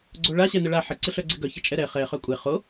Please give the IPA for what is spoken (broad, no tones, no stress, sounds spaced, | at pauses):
ɡ͡ǀ o ɭ a ɕ ɛ n ə ɭ a ħ ə ǀ ɪ ɬ œ ɡ͡ǀ e ɡ œ ç ə t͡ʃʼ ɛ ɾ ɛ χ ɛ χ œ kʷʼ e χ o